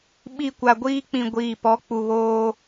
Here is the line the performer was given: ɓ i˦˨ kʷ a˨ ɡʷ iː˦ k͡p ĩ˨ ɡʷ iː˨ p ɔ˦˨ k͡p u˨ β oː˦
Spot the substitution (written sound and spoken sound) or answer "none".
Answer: ɔ˦˨ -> ɔ˨˦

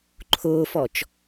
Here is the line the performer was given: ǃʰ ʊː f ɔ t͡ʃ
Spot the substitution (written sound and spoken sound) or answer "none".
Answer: none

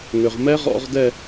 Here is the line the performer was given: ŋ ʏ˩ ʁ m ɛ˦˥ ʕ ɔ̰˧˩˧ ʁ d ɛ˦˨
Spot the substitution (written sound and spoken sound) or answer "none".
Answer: ʕ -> ʁ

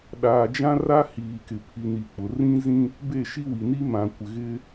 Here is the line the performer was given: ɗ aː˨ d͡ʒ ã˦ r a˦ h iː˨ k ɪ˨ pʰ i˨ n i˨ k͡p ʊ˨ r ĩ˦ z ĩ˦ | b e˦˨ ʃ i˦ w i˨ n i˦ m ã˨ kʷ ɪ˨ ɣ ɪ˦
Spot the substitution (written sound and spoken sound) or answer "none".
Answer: none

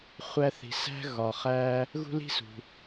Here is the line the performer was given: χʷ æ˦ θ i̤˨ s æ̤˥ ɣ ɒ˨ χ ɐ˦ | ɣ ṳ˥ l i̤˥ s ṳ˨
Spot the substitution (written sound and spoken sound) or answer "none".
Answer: ɐ˦ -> æ˦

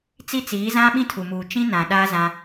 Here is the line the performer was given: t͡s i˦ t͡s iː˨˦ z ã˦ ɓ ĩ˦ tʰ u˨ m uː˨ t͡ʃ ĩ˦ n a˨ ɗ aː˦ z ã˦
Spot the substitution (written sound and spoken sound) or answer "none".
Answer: a˨ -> ã˨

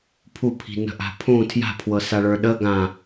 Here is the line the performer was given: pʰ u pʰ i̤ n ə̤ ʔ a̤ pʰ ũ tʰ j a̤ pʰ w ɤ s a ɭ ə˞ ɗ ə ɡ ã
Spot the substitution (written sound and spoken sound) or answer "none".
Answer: none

